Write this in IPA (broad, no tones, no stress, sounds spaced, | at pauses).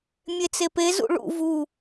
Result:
mʲ e t͡s e p e z ṵ ɭ ṵ v u